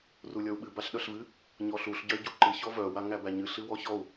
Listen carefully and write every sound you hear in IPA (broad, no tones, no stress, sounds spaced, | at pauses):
r u lʲ ɔ u̯ ɓ ɨ b a ɬ ɗ œ ɬ v ɨ | ɲ ɔ ɬ u ɬ ɟ œ i̯ ɟ u ǃ ɨ ç ɔ v œ w a ŋ æ b æ ɲ ɨ ɬ ɨ w ɔ ç ɔ u̯